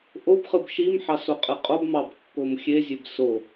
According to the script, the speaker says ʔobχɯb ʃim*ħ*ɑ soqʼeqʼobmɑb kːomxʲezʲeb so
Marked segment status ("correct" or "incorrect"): correct